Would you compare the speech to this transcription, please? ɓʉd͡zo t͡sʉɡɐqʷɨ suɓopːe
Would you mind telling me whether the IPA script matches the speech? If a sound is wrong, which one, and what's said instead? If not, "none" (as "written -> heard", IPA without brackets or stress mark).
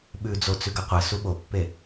none